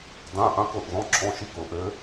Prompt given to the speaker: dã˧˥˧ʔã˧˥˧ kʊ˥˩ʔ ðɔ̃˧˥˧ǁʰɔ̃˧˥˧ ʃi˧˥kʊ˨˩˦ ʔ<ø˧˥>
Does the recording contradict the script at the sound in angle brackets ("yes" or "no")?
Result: no